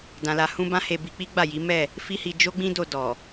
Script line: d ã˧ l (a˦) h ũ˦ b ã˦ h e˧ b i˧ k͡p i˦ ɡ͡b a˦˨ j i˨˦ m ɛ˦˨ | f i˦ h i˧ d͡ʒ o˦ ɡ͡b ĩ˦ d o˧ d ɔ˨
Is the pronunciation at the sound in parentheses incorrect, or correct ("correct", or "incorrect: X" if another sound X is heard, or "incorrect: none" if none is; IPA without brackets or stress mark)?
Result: incorrect: a˧